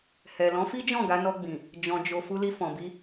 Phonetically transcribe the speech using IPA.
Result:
h ɛ˨ l ɔ̃˨˦ f i˦ d͡ʒ ɔ̃˦˨ ɡ a˨˦ n ɔ˧ ɡ͡b ĩ˨ | d͡ʒ ɔ̃˨ d͡ʒ o˨ f u˧ l i˧ f ɔ̃˨ b i˧

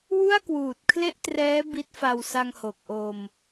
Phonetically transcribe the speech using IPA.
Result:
w u˥˩ a̯ k w uː˨˩ t̚ kʰ l e˥˩ ʔ t r ɛː˦˥ b i˦˥ t̚ f a˧ w s a˧ ŋ h o˨˩ k̚ ʔ o˧ m

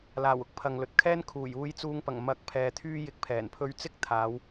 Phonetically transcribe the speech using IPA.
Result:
l aː˨˩ w ʊ˥ k̚ pʰ ɐ˨ ŋ l ɵ˨ t̚ kʰ ɛː˥ n kʰ uː˨˩ j uː˨˧ j t͡s uː˨˧ ŋ p ɐ˨˩ ŋ m ɐ˨˥ k̚ pʰ ɛː˨ t̪ʰ yː˧ j ɪ˨˥ k̚ pʰ ɛː˨˩ n pʰ ɵ˧ ɥ t͡s ɪ˥ k̚ t̪ʰ aː˨˧ w

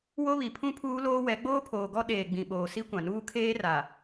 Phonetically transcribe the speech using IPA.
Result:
w o˦ β i˨ pʰ ũ˦ pʰ uː˦ l oː˦ w ɛ˨˦ ɡ͡b oː˦ pʰ oː˨ ɡ ɔ˦ ɗ eː˨ ɡ͡b ĩ˨ ɓ oː˨ s i˦ kʷ ã˨ n uː˦ kʰ eː˦ r a˨

